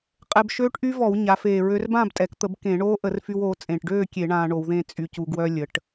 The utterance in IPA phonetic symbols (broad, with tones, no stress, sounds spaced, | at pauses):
qʼ ɛ˧ b ʃ øː˦˥ ʈ ʔ y˦˥ v ɔ˧˩˧ w ɲ a˩˧ f eː˨˩ ɹ ø˧ r b ãː˥˨ b tʼ ɛ˩˧ k t̪ ə˧˩˧ b k ẽ˧˩˧ ɳ oː˦˥ ʔ ə˧˩˧ r f y˧ w oː˩˧ t͡sʼ ẽ˨˩ ʈ ɖ øː˥˨ kʲ e˧˩˧ ɳ ãː˧ ɳ o˧˩˧ w ð ẽ˥˨ t͡sʼ y˧ c u˧ ɡ w œ˧ lʲ ə˩˧ ʈ